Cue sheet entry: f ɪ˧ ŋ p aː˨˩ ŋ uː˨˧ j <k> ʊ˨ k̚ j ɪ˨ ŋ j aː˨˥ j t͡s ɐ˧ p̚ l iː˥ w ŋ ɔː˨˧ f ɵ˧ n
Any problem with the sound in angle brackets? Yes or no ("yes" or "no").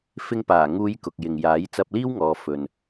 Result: no